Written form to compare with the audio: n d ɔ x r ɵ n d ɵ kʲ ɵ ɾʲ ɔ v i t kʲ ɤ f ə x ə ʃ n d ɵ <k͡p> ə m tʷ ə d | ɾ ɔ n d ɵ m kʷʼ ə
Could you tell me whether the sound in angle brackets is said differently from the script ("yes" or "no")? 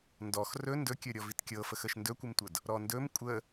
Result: yes